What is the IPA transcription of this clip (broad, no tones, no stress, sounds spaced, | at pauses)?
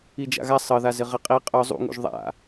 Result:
i d͡ʒ a̰ ɣ a sˤ ɤ ð a z ɪ ʁ ɪ qʼ i qʼ œ zˤ ṵ ŋ ṵ ʒ ðˤ a̰